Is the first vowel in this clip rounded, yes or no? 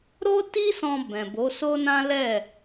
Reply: yes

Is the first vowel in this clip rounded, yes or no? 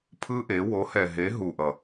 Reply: no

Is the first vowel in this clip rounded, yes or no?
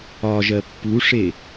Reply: yes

